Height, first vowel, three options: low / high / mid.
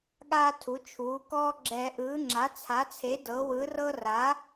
low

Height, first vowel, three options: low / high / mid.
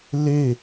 mid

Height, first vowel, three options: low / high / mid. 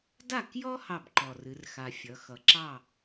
low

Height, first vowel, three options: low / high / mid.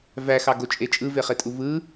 low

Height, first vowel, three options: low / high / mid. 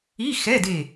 high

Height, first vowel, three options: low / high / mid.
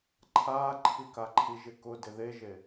low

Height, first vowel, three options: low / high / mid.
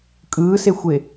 high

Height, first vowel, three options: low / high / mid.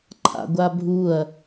low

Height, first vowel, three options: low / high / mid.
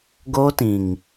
mid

